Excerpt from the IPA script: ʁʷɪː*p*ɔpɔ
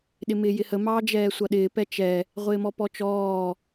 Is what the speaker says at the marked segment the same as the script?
no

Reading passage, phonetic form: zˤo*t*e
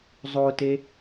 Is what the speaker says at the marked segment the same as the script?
yes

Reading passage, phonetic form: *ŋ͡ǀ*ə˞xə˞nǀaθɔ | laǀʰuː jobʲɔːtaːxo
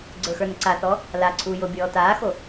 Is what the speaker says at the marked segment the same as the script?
no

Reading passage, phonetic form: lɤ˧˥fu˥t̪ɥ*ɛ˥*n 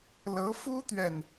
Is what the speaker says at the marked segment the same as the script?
no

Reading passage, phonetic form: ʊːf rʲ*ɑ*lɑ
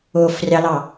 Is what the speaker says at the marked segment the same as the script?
yes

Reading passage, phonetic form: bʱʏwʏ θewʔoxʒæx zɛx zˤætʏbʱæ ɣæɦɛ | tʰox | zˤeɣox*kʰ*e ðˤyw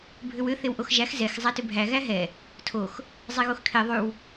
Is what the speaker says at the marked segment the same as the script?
yes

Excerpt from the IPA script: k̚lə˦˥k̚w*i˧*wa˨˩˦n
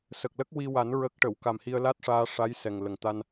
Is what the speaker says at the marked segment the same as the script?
yes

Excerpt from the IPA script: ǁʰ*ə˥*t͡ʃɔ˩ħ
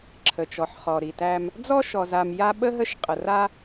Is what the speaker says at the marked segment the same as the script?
no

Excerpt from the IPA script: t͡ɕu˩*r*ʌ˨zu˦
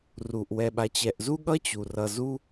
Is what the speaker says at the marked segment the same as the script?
yes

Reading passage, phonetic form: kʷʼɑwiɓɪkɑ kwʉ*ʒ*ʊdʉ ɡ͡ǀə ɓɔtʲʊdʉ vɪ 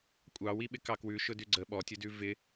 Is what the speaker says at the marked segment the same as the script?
no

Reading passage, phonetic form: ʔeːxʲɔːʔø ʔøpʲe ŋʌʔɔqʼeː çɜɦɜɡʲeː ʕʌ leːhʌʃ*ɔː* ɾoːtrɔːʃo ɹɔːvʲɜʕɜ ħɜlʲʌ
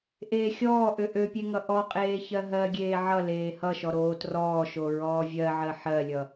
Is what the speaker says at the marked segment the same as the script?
no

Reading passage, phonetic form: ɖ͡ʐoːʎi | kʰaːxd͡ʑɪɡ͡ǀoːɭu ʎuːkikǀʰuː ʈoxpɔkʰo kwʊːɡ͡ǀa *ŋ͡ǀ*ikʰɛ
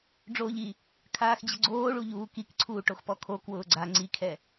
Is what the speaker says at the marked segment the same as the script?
yes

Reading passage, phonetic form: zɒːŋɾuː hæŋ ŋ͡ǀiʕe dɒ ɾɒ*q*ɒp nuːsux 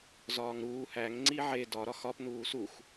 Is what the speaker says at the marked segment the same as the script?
no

